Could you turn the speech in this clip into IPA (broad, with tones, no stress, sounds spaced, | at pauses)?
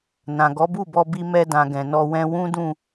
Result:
n ã˨ ɡ ɔ˨˦ b u˦˨ b ɔ˧ b i˧ m ɛ˧ d ã˨ ɡ ɛ̃˨ n ɔ˧ w ɛ̃˦ w ũ˦ d ũ˦˨